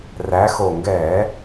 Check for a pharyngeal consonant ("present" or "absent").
absent